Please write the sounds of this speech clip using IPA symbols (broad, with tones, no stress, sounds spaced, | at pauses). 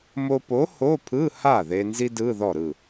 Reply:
m o˧ p o˨˥ h o˧˥˧ pʰ ɯ˧˥˧ h a˥˩ ð e˧ n z i˥ d ɯ˧˥˧ ð ɔ˥˩ ɾ ɯ˥˩